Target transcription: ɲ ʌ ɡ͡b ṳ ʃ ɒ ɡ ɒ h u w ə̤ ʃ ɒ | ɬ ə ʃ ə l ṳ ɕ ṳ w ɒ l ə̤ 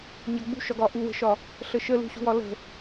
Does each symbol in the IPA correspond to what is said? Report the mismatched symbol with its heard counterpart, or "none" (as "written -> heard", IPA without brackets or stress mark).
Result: h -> ʔ